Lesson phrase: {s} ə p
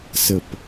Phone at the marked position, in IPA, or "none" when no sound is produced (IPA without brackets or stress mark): s